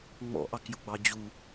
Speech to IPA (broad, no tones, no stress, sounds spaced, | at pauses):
ŋ͡m ɔ̰ ʔ ɑ k j ʊ ɡ͡b ɑ d͡ʑ u